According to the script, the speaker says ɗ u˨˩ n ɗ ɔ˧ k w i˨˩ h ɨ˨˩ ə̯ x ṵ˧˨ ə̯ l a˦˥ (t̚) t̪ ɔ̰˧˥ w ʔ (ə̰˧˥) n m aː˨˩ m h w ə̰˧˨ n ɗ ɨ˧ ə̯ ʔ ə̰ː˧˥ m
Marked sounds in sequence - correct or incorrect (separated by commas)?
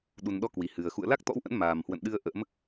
incorrect, correct